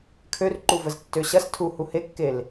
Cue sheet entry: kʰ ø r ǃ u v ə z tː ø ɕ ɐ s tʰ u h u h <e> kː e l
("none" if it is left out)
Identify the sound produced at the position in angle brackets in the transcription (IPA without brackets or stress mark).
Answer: e